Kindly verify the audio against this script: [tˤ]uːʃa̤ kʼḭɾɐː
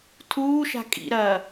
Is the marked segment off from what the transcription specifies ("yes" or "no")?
yes